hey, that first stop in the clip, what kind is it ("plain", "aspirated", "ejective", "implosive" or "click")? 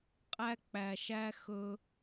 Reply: ejective